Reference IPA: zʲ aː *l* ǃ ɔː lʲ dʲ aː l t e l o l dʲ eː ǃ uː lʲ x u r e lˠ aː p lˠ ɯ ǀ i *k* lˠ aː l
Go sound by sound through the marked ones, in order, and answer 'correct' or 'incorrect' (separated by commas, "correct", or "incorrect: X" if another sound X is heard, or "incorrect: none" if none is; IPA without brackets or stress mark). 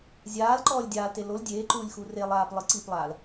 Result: correct, incorrect: p